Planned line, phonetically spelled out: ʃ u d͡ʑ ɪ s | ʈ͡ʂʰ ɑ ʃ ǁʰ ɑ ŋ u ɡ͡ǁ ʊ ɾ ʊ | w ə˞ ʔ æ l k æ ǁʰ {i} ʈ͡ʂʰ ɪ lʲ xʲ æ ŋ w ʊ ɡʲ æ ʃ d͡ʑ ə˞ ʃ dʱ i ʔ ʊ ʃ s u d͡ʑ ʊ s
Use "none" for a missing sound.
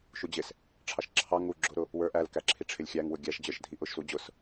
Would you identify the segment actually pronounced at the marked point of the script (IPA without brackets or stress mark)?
i